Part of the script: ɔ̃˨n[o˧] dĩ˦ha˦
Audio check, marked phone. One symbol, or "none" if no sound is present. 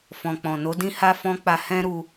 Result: o˨˦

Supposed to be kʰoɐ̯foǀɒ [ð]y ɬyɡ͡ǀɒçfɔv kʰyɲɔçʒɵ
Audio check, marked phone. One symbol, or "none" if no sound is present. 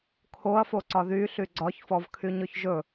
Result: ð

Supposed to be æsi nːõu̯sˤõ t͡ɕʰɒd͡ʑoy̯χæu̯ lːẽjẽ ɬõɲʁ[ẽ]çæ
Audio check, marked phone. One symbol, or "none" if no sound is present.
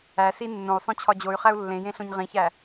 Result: ĩ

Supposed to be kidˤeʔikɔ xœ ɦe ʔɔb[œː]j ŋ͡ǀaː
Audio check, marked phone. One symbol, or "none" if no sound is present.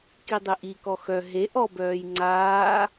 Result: œː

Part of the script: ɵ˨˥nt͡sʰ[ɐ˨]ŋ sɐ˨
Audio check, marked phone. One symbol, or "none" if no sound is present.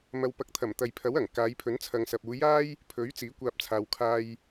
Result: ɐ˨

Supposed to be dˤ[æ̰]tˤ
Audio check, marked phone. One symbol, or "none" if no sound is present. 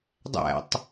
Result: æ̰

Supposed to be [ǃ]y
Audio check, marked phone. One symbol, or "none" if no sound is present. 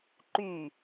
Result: ǃ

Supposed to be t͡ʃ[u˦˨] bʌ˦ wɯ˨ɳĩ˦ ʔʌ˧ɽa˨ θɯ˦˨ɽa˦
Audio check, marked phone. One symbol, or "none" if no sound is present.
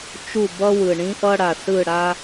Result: u˦˨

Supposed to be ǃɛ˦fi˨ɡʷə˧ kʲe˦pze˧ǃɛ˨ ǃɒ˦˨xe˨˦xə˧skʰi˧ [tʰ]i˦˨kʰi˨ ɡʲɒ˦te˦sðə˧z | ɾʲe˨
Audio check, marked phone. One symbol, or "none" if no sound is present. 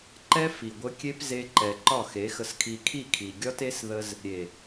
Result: kʰ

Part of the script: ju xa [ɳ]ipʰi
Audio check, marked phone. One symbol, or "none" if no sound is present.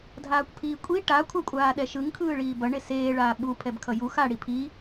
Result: ɽ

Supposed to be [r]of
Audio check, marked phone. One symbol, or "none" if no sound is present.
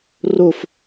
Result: r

